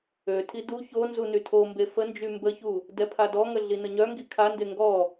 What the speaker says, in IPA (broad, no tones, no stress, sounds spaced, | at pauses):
ø tʰ i d u ç o n z u n y tʰ o m b e f ə n d͡ʒ y m b ə ç u | d ɛ pʰ a d ɔ ŋ ə ɮ i n ə ɲ œ ŋ ɡ i kʰ a n d e ŋ ɡ ɔ